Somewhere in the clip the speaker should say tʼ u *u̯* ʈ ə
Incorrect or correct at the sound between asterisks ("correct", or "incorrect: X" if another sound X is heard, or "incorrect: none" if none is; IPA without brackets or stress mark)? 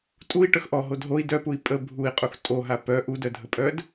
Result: incorrect: i̯